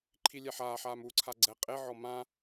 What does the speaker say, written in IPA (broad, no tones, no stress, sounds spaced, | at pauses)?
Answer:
ǃʰ i lʲ ɛ ħ aː ħ aː m u ǀʰ a ɡ͡ǀ ɛ qʼ e ʕ ɔ m ã